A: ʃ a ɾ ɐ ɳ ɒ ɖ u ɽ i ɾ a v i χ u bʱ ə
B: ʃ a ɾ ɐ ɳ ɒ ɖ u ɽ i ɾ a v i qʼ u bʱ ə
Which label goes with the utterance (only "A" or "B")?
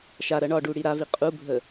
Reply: B